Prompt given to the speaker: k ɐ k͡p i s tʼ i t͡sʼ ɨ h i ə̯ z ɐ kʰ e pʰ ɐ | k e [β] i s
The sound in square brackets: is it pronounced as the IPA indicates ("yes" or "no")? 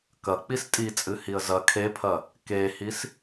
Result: no